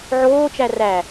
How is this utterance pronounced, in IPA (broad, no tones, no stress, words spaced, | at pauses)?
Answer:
ʕoːt͡ʃæ ræ